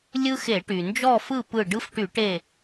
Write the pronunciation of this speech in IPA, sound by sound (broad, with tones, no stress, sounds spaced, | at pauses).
lʲ ɯ˦ x e˧˩˧ ʈ y˩ n d͡ʒ ɔ˥˨ f ɯ˥˨ p ɯ˧˩ ɖ ɯ˦ f ʈ y˧˩˧ ʈ e˧˩